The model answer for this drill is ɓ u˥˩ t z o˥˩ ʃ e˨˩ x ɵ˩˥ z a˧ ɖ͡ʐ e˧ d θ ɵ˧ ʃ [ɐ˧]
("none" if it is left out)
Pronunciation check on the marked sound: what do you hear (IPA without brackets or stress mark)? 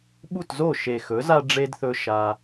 a˧